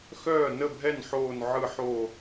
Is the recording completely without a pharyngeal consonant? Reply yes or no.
no